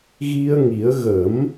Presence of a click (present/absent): absent